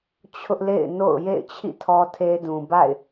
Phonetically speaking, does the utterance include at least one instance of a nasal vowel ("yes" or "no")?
yes